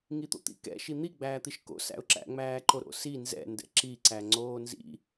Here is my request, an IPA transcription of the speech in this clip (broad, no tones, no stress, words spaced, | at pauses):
ŋit̪o̰t̪ḭ kɛ̰ ʃin̪i ɡ͡bæːt̪iʃko̰ sæ̰ʊ̯ǁæ̰ ŋ͡mæːǃoɾo̰si nzɛ̰ ndɛ̰ǁi ǀæŋ͡ǀoːnzḭ